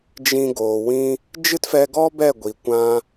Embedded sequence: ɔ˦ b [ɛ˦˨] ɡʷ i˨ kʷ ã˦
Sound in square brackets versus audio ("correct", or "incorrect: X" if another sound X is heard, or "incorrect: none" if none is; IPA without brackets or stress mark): correct